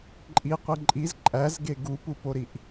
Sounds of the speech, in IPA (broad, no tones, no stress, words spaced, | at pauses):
ǃʼiqʷi ǃʼiz ǃʼæzɡe ɡupupoɾiʔ